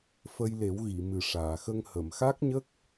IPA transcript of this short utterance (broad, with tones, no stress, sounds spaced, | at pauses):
f ə˧ j l e˨˩˦ w ɣ i˨˩˨ m ɨ˨˩ ʂ aː˨˩˨ x ə˧ ŋ h ə˨˩˨ m x a˦˥ k̚ ɲ ə˦˥ k̚